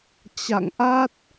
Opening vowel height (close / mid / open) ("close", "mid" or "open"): open